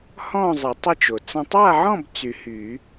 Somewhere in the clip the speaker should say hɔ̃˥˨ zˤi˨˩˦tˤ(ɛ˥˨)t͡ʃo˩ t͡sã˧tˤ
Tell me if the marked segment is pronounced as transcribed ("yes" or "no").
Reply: no